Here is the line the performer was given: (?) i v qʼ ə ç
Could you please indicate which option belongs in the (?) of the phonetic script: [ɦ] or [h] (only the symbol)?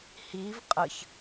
h